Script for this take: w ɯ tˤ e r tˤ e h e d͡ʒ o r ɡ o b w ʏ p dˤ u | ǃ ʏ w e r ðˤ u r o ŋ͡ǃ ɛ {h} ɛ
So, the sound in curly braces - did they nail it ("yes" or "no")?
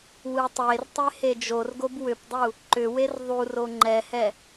yes